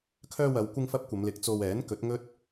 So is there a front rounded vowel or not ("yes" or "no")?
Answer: yes